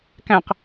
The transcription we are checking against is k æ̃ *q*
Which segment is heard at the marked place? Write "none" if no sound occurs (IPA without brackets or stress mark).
q